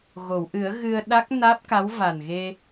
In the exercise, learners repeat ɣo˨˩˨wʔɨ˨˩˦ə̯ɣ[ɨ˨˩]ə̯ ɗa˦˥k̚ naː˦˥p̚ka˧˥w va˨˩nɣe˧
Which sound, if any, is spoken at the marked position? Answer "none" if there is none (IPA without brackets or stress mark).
ɨ˧